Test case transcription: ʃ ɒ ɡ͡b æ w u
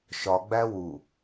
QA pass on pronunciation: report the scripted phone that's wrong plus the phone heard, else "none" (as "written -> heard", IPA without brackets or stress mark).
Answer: none